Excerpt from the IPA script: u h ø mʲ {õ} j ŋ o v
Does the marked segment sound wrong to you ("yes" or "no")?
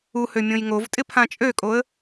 no